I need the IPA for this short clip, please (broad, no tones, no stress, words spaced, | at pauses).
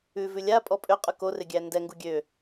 ʉvʉ lʲa pʼɔpʼøqʼʉ korɪ ɡʲændɛŋɡu ɡʲø